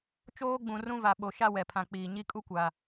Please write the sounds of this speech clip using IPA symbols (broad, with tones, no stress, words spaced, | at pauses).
t͡ʃoː˦ɡ͡bũ˨ rũ˦va˨ ɓo˨ʃa˦ wɛ˨pʰã˨k͡piː˨ ɲi˦kʼu˦kʷa˨